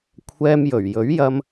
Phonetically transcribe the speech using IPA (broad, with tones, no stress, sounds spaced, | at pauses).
kʷʰ ɛː˧ m j ɵ˨˩ ɥ j ɵ˨˥ ɥ j ɐ˧ m